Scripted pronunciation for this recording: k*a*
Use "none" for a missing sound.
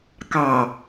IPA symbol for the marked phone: ɑ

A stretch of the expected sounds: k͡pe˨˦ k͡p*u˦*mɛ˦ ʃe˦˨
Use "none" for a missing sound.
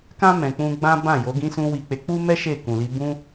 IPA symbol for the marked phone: u˦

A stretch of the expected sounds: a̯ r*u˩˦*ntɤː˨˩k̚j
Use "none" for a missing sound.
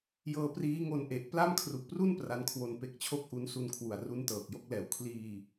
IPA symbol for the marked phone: u˦˥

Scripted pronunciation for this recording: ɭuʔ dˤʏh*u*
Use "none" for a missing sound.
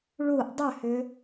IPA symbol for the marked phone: ʏ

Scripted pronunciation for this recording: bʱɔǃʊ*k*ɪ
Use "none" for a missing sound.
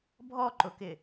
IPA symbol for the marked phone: k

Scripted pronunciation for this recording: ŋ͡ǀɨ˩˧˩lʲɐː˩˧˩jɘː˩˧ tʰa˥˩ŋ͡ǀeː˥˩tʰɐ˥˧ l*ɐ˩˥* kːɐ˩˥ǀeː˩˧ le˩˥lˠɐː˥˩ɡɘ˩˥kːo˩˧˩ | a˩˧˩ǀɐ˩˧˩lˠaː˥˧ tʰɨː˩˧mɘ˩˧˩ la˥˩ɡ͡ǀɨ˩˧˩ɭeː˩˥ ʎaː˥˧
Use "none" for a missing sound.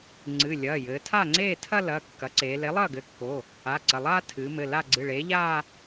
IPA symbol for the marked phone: ɐ˩˧˩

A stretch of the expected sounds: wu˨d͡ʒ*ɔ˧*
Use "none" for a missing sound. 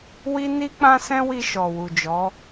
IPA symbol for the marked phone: ɔ˨˦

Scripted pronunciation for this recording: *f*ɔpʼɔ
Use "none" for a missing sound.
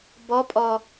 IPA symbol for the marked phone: b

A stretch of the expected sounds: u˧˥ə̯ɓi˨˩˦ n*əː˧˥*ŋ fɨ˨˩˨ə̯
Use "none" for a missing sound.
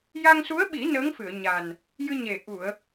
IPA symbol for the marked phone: əː˧˥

